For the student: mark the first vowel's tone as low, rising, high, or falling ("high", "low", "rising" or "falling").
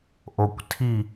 low